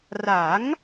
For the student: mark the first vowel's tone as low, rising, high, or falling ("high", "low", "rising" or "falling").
rising